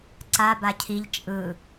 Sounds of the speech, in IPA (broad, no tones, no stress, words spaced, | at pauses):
ǀa bacʰiʎ t͡ʃʼɯ